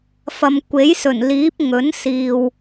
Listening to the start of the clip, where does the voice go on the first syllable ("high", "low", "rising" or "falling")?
low